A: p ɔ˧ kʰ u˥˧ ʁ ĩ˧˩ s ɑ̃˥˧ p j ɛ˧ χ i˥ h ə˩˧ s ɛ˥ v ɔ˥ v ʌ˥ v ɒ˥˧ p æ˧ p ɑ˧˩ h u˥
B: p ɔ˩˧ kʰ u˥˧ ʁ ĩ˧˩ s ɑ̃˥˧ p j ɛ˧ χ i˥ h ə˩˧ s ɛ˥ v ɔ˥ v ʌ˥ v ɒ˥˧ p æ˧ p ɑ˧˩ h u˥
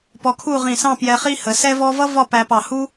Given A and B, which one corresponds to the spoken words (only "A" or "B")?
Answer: A